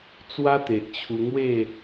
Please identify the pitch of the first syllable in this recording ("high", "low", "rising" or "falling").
high